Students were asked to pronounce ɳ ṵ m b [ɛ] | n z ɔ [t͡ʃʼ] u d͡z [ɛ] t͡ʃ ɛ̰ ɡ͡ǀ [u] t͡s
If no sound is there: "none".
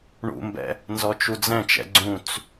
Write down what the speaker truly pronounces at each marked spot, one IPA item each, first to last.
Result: ɛ̰, t͡ʃ, ɛ̃, ũ

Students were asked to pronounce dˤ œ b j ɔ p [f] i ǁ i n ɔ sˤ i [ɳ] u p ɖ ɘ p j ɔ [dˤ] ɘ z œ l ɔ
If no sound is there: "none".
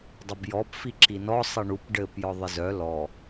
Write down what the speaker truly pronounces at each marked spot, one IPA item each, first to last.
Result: f, ɳ, ðˤ

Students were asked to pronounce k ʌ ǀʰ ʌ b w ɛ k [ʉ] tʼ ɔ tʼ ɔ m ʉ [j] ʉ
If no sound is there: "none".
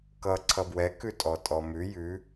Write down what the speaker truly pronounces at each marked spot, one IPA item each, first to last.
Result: ʉ, j

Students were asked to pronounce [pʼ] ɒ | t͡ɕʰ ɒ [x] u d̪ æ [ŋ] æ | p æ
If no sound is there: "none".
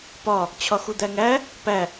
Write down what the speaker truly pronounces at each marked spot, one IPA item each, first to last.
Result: p, x, ŋ

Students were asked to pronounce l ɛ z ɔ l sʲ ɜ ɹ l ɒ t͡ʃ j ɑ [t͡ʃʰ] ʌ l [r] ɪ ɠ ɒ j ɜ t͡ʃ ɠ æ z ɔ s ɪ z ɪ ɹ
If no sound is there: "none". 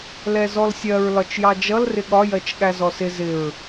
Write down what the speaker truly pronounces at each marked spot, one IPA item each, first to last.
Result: d͡ʒ, r

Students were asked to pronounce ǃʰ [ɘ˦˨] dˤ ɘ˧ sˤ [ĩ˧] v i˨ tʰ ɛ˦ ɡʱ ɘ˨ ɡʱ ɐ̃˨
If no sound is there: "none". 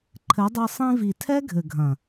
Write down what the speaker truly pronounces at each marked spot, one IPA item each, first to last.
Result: ɘ˨˦, ĩ˧

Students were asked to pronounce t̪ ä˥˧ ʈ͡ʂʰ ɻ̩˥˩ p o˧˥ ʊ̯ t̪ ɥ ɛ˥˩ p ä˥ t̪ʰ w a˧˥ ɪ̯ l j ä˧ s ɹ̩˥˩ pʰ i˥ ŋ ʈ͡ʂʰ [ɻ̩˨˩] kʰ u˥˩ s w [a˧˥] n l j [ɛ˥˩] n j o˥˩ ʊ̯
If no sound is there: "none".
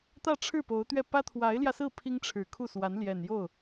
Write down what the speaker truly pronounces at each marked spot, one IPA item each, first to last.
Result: ɻ̩˨˩, a˧˥, ɛ˨˩

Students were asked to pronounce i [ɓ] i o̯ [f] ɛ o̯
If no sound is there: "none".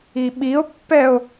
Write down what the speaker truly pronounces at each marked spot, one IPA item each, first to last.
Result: ɓ, pː

